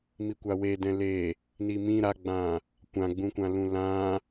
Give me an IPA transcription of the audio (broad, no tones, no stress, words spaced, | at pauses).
mikʷawe dɛ̃le | nimĩ ɾaɡ͡bã | kʷãɡ͡bũkʷã lũlã